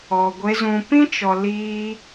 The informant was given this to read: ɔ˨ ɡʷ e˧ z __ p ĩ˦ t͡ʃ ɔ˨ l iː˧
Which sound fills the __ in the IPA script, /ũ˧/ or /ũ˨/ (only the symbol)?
ũ˨